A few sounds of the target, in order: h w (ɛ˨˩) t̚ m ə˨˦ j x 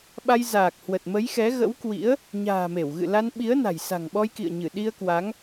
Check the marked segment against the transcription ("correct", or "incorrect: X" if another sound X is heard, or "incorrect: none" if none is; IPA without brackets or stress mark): incorrect: ə˨˩